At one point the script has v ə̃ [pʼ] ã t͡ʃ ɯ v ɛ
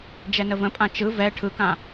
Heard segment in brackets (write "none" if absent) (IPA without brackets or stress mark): pʼ